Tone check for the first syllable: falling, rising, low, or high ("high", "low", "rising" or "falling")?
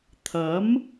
rising